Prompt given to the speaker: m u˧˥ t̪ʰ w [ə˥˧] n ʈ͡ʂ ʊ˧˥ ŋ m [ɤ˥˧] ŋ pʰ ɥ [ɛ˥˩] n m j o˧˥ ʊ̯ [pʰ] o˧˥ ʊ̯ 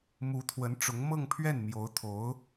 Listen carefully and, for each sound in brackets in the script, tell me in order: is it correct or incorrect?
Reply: incorrect, correct, correct, incorrect

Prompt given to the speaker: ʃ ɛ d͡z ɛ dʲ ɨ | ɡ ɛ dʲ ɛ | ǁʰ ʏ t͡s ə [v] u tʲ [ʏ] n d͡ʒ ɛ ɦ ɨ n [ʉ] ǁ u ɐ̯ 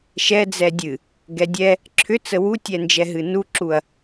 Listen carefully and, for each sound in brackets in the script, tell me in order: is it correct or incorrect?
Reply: incorrect, incorrect, incorrect

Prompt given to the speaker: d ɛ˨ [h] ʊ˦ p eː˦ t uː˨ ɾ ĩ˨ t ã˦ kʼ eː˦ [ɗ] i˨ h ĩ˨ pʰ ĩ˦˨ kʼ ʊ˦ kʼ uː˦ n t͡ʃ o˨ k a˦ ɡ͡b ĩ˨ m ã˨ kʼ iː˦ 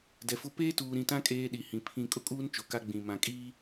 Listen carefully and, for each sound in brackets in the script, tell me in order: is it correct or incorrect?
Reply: incorrect, correct

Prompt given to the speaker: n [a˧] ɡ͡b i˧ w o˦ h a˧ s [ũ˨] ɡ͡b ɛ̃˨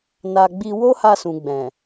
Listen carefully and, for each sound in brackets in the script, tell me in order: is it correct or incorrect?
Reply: correct, correct

